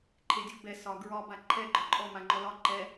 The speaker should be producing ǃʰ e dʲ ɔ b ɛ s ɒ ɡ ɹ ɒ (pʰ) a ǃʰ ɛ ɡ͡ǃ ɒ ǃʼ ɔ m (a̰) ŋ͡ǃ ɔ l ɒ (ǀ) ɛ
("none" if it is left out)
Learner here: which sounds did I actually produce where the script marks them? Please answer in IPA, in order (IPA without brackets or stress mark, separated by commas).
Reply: b, a, ǃ